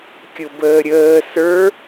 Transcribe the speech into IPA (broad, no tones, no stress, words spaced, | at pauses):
kʲʊbəːɾʲəː sə˞